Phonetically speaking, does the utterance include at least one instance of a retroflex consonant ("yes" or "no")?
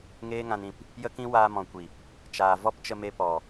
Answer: no